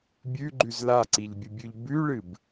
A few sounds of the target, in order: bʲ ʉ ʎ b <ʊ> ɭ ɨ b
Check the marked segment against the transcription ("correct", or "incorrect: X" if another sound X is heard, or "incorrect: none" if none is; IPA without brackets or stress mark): incorrect: ʉ